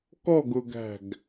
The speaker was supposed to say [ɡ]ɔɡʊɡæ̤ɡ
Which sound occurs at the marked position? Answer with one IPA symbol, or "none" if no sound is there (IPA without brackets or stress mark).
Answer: k